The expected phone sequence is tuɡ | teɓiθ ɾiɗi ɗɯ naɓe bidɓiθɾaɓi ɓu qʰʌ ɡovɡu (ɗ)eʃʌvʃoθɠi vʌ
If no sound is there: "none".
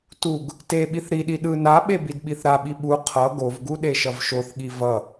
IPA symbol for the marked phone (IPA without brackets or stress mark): ɗ